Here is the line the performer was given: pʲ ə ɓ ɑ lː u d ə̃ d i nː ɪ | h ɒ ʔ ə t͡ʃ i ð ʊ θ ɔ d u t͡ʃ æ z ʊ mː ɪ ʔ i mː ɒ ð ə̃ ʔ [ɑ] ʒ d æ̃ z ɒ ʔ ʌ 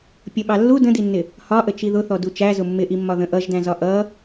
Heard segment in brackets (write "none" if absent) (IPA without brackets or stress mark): ʌ